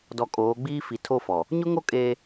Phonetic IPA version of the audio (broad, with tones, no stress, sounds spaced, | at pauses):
d ɔ˨ kʼ oː˨˦ ɡ͡b iː˦ f i˨ tʰ o˦˨ f ɔ˨ | ɲ ʊ˦ ŋ o˦ kʼ eː˦